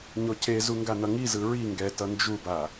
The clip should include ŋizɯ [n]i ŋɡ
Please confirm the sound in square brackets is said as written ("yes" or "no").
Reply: no